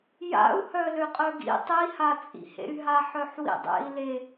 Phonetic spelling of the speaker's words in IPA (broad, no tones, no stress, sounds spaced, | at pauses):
j a̰ u̯ h œ l ø qʼ œ ɡ ḭ tˤ i h a t͡sʼ ḭ h ḛ y̯ ɦ a ħ œ ħ w ḭ dˤ ḛ i̯ l e